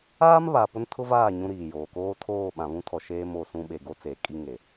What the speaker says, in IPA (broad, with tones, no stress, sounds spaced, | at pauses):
aː˦ m β a˨ p ʊ˦ n tʰ ʊ˦ v aː˦˨ ɲ ũ˦ ɾ iː˨ j oː˨ k oː˦ tʰ oː˦˨ ɓ ã˨ β ũ˦ tʰ ɔ˨ ʃ eː˦ m o˦˨ s ũ˦ ɓ e˨ ɡ o˦ t͡s eː˨ kʼ i˦ ŋ e˨